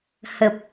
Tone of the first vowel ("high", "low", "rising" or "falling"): low